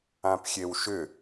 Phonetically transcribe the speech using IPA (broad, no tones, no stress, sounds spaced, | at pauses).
ã p xʲ e w ʃ ʏ